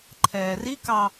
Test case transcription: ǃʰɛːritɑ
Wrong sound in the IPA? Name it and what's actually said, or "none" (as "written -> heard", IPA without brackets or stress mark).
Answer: t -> k